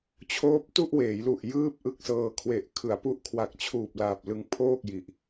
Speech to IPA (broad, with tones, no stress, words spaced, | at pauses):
t͡ɕʰoː˦˥p̚tu˥˩ʔweː˩˦jlu˨˩ʔ jɯː˥˩p̚ʔɯ˥˩k̚sɤː˧ kʰwe˨˩ʔkʰɯ˩˦a̯pu˦˥ʔ kʰwa˨˩k̚t͡ɕʰuː˨˩p̚laː˨˩p̚ lɯ˧ŋpʰoː˥˩k̚ji˨˩ʔ